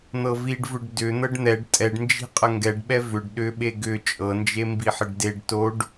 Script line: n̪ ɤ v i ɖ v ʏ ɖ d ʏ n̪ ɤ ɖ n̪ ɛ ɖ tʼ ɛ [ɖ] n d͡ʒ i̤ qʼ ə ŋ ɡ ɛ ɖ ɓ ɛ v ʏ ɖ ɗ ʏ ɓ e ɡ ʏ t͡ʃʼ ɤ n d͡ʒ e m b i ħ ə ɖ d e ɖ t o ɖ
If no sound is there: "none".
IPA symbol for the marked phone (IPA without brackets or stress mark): ɖ